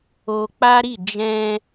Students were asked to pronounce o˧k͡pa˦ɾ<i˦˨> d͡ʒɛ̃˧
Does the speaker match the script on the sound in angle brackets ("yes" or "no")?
yes